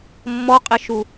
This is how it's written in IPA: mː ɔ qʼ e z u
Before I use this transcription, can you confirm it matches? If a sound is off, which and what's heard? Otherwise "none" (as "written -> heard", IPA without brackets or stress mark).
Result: z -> ʃ